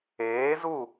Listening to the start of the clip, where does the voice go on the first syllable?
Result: rising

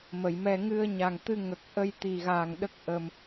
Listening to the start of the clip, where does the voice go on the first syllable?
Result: low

